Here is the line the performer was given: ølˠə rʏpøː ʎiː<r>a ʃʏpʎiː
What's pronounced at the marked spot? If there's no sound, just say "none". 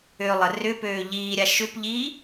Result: ɾʲ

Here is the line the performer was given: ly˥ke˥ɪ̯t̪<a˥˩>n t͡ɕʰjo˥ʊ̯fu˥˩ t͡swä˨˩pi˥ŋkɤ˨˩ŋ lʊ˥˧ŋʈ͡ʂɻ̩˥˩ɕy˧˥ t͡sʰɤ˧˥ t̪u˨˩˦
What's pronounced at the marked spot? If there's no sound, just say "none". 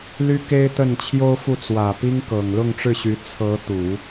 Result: ə˥˩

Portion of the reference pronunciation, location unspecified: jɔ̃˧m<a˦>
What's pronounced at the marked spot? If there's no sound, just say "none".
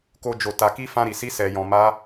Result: a˦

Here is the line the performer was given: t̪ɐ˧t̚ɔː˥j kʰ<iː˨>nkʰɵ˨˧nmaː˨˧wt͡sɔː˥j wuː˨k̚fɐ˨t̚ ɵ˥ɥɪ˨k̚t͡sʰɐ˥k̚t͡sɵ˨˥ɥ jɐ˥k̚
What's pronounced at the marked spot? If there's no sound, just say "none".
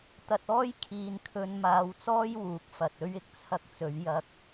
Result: iː˨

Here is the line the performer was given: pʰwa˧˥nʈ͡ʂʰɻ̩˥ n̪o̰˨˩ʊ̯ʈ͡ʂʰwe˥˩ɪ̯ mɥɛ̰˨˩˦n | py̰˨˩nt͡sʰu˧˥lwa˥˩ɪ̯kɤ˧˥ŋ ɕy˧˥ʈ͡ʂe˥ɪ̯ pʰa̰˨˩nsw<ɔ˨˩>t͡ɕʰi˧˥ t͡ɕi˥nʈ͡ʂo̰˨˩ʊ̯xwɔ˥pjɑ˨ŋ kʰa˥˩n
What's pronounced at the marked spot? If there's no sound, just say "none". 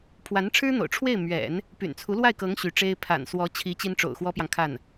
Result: ɔ˧˥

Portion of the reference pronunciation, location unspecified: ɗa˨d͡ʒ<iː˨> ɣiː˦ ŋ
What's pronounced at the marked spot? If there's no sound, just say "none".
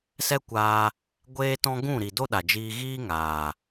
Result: iː˧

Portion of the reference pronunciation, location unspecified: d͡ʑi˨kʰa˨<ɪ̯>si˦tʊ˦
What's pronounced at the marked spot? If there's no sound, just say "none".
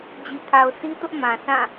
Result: ʊ̯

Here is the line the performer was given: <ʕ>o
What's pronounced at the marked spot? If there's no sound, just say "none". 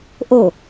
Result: ʔ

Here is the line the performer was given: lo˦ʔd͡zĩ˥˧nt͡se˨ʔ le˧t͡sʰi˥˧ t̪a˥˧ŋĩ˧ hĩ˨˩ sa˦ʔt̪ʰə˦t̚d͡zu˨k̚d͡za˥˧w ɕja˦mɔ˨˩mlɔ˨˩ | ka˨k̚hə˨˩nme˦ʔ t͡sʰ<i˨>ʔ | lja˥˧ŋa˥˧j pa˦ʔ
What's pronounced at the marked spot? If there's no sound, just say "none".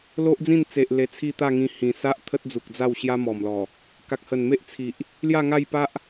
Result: i˨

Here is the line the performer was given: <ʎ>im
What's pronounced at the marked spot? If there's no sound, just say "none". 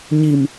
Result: ɲ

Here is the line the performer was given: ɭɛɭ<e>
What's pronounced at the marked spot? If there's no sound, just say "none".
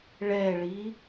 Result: i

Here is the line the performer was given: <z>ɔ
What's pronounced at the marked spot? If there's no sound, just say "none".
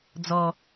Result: d͡z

